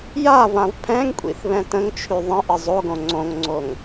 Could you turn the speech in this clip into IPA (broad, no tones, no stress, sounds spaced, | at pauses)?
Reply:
j a v ã v pʰ ɛ̃ ŋ kʷʼ ḭ θ β ɛ̃ t ə̃ ŋ t͡ʃʰ ʉ ðˤ ə̃ ʔ ə zˤ o ɡ õ ŋ͡ǀ õ ŋ ŋ͡ǀ o ŋ